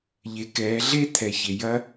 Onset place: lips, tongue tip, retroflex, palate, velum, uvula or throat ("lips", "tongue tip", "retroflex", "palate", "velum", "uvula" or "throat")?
palate